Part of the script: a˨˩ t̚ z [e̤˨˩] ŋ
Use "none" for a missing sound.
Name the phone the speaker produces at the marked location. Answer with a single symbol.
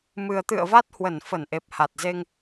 e˧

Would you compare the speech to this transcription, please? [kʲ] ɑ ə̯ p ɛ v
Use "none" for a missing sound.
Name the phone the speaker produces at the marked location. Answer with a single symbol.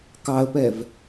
k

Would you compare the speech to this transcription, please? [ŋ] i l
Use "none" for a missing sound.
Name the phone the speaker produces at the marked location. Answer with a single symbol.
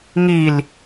ŋ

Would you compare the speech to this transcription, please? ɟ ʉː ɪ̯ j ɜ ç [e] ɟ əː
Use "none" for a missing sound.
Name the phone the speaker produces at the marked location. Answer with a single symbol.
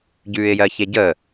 e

